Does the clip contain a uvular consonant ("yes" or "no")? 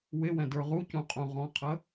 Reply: yes